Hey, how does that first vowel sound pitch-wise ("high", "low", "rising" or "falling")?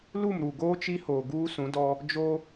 falling